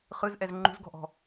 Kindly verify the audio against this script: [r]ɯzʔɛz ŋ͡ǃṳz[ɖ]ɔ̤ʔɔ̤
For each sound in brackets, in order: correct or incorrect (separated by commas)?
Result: incorrect, incorrect